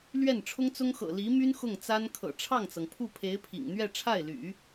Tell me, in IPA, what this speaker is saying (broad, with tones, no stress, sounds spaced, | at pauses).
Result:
l ɥ ɛ˥˩ n ʈ͡ʂʰ ʊ˥ ŋ t͡s ʊ˥ ŋ x ɤ̰˨˩ l i˧˥ m y˥ n x ʊ˥˩ ŋ t͡s a˥ n kʰ ɤ̰˨˩ ʈ͡ʂʰ ɑ˥˩ ŋ t͡s ɤ˩ ŋ pʰ u˥˩ pʰ e˧˥ ɪ̯ pʰ ḭ˨˩ ŋ n̪ ɥ ɛ˥˧ ʈ͡ʂʰ a˥˩ ɪ̯ l y̰˨˩˦